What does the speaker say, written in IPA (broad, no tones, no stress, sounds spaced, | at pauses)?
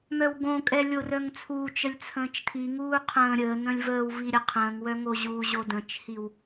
m œ w ɡ õ kʼ ɛ lʲ o r œ ŋ t͡sʰ uː t͡ʃ ə lʲ t͡sʰ ə̃ː t͡ʃ tʰ i ŋ uː qʰ ə̃ː ɾʲ əː n̪ ə̃ lʲ v əː w v i ɾʲ ə qʰ ə̃ː ŋ w œ ŋ o ʑ uː ʑ o d ə̃ t͡ʃ h i w